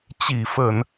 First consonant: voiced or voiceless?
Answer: voiceless